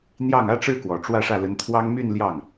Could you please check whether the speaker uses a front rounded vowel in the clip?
yes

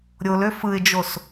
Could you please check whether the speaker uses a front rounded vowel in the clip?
yes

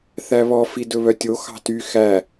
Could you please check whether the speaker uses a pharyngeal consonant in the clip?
no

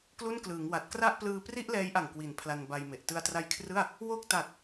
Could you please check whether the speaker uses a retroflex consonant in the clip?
no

